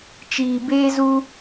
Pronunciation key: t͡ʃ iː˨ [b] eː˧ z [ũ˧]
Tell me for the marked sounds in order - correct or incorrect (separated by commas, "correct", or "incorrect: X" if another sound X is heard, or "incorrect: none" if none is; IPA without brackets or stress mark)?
correct, incorrect: u˧